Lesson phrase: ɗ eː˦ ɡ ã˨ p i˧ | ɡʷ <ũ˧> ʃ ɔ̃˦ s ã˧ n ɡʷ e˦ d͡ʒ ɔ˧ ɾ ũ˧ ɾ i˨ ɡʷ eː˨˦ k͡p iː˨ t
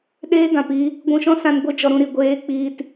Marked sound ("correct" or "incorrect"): correct